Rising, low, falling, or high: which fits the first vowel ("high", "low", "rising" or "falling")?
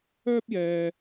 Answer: high